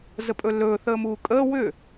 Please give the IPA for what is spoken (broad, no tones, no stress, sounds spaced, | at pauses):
z ə pʼ ɵ lː ɵː θ əː m uː kʼ əː w ʏ